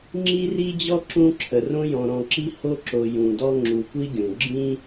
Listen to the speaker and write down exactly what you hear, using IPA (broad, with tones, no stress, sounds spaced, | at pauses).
ŋ͡ǁ i˥ r i˥ d͡ʑ ɔ˥ ǁ ũ˦ ǁʰ ə˩ r õ˥ j ɔ̃˨ ɾ ɔ̃˨ ǁ i˥ h o˦ ǁ o˨ j ũ˩ d ɔ˦ ŋ͡ǁ u˨ kʷ i˥ ɡʲ ũ˩ ɡ͡ǁ ĩ˦